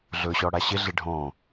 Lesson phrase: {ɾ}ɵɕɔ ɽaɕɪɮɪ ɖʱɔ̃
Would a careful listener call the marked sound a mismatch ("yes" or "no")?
yes